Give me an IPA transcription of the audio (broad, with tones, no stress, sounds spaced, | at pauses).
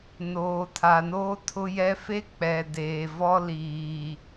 n oː˨ tʰ a˨ n oː˦ tʰ ʊ˦ j ɛ˦ f e˦ k͡p ɛ˨ d eː˨ v ɔ˦ l iː˨